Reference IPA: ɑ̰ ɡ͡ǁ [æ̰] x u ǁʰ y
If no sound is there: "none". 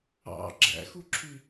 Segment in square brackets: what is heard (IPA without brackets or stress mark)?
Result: æ̰